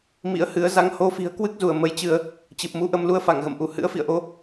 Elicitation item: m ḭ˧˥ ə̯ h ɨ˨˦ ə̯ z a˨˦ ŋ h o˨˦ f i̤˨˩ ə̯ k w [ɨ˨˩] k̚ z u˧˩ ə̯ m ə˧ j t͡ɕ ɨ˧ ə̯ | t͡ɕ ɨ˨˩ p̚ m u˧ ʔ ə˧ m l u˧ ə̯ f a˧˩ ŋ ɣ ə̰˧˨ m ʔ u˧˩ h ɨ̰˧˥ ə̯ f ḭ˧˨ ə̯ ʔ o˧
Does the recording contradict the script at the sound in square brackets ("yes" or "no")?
yes